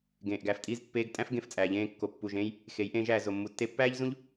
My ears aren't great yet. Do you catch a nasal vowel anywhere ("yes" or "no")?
yes